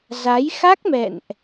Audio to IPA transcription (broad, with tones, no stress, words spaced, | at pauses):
za˨˦j xa˦˥k̚mɛ̰˧˨nʔ